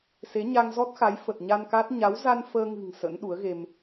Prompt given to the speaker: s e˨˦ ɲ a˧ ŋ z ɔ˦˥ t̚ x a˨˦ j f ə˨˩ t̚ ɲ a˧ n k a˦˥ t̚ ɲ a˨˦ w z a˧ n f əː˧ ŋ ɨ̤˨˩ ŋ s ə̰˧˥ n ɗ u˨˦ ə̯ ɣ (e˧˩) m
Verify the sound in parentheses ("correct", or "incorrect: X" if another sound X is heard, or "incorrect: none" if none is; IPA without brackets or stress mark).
incorrect: e˧